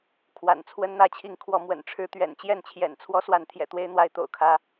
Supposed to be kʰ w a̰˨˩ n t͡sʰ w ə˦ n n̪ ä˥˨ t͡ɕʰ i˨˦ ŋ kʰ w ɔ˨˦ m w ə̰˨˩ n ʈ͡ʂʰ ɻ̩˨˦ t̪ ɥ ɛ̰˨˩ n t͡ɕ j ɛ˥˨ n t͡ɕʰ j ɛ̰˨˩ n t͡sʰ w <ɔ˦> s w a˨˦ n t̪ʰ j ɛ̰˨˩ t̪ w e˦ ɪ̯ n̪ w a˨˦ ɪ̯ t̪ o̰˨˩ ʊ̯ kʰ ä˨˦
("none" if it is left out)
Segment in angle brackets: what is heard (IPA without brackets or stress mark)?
ɔ˦